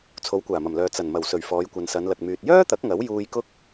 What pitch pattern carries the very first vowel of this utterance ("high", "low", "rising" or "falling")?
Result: rising